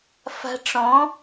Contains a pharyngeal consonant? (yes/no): no